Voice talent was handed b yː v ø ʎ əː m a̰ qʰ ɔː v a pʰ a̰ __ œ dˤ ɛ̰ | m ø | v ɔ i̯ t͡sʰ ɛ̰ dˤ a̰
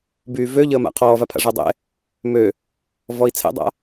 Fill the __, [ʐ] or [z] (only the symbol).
ʐ